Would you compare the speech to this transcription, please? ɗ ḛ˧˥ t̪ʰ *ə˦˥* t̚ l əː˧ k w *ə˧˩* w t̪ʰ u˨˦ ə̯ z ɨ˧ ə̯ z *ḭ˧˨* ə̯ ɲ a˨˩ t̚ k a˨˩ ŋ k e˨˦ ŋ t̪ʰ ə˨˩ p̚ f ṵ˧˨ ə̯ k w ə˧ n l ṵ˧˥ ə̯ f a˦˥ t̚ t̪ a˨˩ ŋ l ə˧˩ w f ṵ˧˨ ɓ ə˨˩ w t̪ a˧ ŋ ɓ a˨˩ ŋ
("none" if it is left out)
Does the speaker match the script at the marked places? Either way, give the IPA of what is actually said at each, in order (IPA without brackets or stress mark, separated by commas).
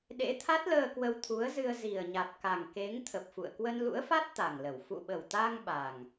a˦˥, ə˧, i˨˩